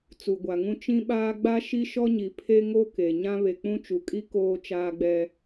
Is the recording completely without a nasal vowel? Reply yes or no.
no